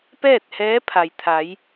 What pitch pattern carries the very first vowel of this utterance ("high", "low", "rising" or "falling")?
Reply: falling